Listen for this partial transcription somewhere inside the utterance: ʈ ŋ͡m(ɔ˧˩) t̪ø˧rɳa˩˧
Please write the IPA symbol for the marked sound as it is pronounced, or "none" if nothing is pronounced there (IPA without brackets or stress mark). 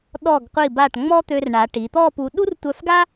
ɔ˥